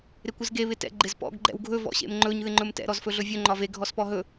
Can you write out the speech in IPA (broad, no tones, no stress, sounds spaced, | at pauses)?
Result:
ɾ ɪ kʷ ɪ z ɡ e β ɪ t ɛ̰ ɡ͡ǃ ɪ z p ɔ̰ ɡ ɡ͡ǃ ɛ̰ w ɡʱ ɵ v ɔ̰ ɕ ḛ m ŋ͡ǃ ɵ ɲ ð ɪ ŋ͡ǃ ɵ m t ɛ̰ ɾ ɔ z f ɵ ɮ ɵ vʲ ɵ ŋ͡ǃ ɒ v e ɡʱ ɔ s p ɔ ɦ ɵ